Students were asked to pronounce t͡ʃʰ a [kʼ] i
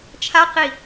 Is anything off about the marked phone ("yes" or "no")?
yes